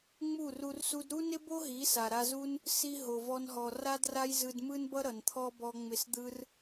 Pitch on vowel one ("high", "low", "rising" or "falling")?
falling